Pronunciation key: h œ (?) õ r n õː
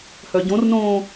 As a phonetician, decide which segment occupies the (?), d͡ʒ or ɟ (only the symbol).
ɟ